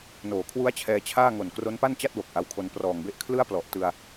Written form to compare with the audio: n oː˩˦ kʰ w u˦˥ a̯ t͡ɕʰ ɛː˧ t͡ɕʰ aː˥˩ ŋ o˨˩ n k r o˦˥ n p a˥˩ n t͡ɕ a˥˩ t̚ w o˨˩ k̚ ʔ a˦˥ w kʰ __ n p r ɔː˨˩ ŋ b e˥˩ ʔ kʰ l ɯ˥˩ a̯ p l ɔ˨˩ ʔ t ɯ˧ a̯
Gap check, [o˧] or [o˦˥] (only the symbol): o˦˥